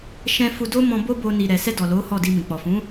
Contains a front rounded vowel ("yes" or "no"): no